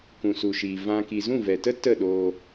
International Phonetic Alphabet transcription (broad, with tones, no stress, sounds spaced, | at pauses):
k ũ˨ s u˨ ʃ iː˨ v ã˧ k i˨ z ũ˦˨ v ɛ˨ t ə˦ t ə˦˨ ɗ oː˧